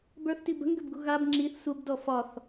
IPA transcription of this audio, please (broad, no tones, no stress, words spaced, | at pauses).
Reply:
bə˞θti bə̤ŋɡʏbɡṳ ɣab ŋ͡ǁiθ sʷəbdɔ fɒθ